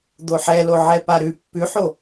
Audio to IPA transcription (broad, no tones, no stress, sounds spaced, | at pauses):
d̪ o ħ ɛ l o ʕ ɛ p a ɾ ʉ pː ʉ ħ o